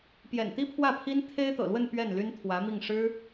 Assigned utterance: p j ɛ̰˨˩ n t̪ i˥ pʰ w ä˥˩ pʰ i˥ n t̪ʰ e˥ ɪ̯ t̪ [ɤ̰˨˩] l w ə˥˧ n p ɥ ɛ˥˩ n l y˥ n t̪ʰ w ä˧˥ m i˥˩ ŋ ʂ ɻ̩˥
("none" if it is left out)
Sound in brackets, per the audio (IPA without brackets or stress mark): ɤ̰˨˩